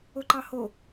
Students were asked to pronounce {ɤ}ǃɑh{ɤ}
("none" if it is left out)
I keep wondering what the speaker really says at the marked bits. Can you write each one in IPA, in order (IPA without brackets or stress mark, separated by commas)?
o, o